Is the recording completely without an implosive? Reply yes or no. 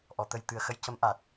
yes